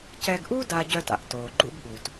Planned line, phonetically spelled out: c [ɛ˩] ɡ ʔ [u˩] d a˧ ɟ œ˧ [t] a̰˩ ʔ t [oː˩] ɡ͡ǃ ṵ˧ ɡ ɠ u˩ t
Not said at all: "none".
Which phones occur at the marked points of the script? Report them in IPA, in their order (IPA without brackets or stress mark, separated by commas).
ɛ˧, u˥, t, oː˩